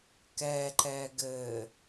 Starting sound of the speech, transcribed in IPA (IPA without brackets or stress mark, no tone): k